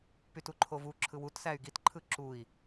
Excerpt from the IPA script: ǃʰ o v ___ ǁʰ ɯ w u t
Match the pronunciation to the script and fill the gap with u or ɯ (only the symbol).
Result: u